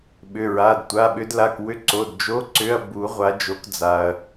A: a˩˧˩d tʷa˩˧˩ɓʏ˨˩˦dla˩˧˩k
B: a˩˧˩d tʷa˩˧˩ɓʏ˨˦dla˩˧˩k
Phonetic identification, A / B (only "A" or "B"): B